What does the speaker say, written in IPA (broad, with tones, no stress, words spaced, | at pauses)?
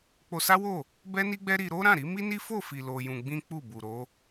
k͡po˧sa˦wo˦˨ | bɛ˦ni˦ɡ͡bɛ˦ ɾi˧ɾo˦ɾã˦˨ɾi˨˦ mi˦ni˦fo˦˨fi˨ lo˧jũ˧ɡ͡bĩ˦k͡pu˦˨ bu˨ ɾo˨˦